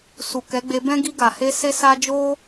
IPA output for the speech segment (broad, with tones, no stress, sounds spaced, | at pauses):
s u˨ k ɛ˨˦ ɡ͡b e˧ b ɛ̃˦ ɡ i˧ ɡ a˨ h e˧ s e˦ s a˦ d͡ʒ o˦